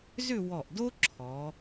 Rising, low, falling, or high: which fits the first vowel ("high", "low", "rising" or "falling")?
falling